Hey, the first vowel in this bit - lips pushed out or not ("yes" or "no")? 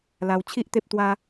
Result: no